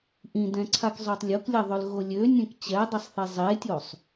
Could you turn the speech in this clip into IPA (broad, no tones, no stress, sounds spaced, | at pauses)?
ʔ ĩ d ɛ̃ ǀʰ a k zˤ ø tˤ lʲ o k lʲ ɛ ðˤ ø l ɣ o lʲ ø nʲ ɛ̃ k t͡ɕ ɛ dˤ i sˤ θ e zˤ e tʲ o sˤ